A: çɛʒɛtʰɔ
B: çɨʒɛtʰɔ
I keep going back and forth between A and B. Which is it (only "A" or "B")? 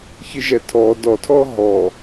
B